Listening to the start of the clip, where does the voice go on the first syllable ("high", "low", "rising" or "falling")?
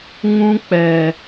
high